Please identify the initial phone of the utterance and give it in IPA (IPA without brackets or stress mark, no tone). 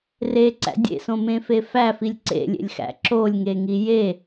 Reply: r